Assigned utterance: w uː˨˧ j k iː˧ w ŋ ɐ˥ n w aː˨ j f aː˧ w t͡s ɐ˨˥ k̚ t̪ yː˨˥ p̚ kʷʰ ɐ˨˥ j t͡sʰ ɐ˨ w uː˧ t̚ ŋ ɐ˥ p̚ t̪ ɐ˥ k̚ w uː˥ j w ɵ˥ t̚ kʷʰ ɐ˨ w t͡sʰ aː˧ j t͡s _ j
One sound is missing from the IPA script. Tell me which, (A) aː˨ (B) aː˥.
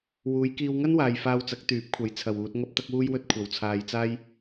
B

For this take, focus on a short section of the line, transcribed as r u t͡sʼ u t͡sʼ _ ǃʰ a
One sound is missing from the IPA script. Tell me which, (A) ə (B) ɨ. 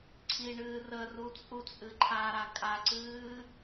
B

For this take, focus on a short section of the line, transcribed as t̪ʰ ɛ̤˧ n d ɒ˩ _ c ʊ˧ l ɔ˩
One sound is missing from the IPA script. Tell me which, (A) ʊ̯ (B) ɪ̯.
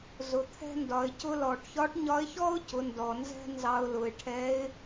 B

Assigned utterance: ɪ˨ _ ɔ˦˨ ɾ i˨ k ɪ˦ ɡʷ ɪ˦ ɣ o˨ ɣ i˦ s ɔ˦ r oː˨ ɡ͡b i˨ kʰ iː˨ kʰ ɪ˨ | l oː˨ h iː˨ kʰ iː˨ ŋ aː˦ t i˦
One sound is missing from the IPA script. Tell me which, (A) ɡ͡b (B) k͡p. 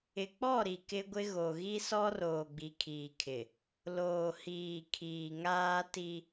B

